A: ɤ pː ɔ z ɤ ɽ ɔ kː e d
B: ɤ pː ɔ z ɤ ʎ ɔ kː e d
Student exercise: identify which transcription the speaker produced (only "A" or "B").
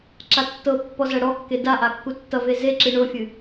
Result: A